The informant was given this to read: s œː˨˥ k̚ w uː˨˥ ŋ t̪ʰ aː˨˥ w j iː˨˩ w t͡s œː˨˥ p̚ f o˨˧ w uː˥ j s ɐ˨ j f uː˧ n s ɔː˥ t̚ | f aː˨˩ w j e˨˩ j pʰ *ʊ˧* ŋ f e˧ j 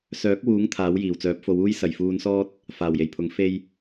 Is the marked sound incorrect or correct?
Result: incorrect